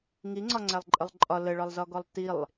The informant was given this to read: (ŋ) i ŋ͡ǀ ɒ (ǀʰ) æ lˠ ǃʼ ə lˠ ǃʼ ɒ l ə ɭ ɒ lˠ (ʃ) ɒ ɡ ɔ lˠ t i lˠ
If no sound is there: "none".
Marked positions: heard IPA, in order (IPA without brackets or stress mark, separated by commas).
ŋ, ŋ͡ǀ, z